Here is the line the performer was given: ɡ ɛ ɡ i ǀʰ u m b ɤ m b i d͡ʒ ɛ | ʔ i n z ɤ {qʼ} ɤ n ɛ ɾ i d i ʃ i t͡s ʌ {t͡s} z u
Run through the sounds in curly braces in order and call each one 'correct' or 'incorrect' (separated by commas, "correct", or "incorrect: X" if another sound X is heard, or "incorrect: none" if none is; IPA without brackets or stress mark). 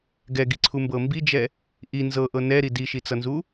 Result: incorrect: ʔ, incorrect: n